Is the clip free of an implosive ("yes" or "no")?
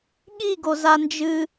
no